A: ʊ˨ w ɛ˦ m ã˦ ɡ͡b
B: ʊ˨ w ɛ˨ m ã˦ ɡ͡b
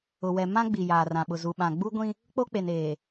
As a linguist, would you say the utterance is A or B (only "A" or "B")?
B